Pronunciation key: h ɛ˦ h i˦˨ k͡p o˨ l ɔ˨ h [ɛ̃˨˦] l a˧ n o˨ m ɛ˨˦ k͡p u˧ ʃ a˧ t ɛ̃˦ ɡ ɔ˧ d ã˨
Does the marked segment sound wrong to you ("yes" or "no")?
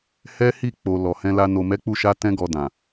yes